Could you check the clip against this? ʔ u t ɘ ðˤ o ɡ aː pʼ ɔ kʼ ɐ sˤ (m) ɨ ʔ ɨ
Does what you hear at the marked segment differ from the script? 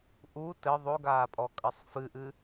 yes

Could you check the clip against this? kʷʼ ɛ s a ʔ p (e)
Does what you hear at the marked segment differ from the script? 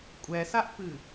yes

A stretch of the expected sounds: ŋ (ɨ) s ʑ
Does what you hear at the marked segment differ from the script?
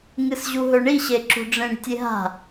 no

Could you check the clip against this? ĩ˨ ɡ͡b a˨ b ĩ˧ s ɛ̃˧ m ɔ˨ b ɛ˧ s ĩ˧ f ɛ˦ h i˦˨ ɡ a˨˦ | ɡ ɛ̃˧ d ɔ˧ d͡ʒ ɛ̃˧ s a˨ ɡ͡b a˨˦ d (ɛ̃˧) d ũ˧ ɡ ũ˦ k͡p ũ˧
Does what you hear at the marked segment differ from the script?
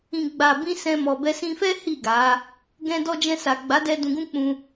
yes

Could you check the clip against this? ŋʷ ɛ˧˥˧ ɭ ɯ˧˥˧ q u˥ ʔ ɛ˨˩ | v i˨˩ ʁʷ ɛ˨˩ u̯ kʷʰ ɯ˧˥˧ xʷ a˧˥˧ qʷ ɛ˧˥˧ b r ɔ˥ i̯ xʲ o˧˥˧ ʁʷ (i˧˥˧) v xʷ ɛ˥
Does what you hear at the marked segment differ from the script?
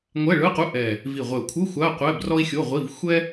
no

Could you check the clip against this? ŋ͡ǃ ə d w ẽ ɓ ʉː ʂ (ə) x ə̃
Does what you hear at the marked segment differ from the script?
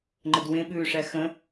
yes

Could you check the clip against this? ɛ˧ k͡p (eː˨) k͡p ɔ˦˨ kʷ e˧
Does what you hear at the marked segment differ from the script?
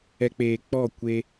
no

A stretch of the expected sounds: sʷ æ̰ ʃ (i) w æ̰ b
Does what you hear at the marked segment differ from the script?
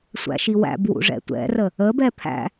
no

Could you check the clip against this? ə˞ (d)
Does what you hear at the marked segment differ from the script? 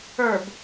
yes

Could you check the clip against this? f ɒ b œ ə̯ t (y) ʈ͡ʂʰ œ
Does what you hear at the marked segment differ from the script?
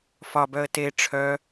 yes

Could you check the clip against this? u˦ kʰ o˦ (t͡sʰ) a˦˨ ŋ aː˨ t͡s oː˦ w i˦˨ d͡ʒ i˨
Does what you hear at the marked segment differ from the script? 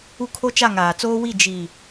yes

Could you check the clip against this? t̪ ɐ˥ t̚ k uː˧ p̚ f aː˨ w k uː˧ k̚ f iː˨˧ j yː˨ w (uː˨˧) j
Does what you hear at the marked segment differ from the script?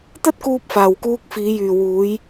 no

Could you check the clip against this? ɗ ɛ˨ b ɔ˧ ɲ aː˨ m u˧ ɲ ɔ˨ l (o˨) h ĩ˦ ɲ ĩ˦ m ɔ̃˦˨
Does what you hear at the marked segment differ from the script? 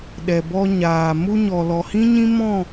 yes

